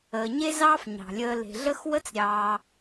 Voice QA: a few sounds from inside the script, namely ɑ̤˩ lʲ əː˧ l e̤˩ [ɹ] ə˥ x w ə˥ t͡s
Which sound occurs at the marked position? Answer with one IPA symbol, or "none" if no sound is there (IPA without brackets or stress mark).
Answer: ɮ